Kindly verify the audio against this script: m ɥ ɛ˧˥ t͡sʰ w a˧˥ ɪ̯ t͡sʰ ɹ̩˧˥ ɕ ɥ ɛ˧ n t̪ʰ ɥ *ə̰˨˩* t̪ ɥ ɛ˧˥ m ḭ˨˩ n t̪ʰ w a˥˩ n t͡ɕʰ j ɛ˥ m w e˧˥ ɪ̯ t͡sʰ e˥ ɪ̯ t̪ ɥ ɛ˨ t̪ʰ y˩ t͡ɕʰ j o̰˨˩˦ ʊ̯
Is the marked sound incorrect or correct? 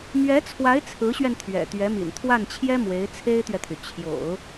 incorrect